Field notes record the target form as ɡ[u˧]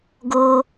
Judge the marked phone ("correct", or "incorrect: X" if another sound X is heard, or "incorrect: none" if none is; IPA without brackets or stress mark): incorrect: o˧